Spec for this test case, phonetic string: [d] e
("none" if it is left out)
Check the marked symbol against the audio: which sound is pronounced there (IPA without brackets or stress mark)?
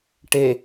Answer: ʈ